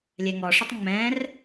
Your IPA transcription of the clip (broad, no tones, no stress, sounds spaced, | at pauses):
lʲ ɛ ŋ ɔ ʂ ʊ tˤ ŋ͡m ɛ̃ r